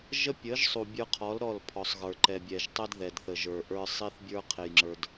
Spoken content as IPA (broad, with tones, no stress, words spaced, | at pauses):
ʒə˦pʲə˨˦ʒsˤu˨ bʲə˞˧qʰɔ˨˦l ɾɔ˦˨lpʰɔ˨sˤɣə˞˨ ǃɛ˨bʲɛ˨ʒtˤɛ˦d ðɛ˨d θə˨ʒə˞˨ ʔə˞˧sˤi˦θbʲə˞˦ qʰe˧jŋ͡ǁə˞˧d